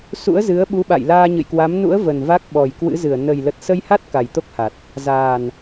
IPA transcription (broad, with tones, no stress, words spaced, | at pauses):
sṵ˧˥ə̯zɨ˨˦ə̯ ɓu˨˦ɓa̰˧˨j laː˧ɲɨ̰˧˨jkwa˨˦m nṵ˧˥ə̯və˨˩n va˦˥k̚ɓɔ˨˩jkwɨ̰˧˥zɨ˧˩ə̯ nə˨˩j lə˨˩t̚sə˧jha˦˥t̚ ka˨˩jt̪o˦˥k̚ha˨˩t̚ | zaː˨˩n